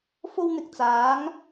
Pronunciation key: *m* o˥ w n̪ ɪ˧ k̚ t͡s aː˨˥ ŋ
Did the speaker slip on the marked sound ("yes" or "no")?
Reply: yes